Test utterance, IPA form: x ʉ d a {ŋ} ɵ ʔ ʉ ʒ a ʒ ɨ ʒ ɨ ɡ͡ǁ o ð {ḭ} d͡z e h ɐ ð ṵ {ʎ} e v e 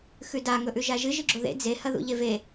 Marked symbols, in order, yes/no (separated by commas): yes, no, yes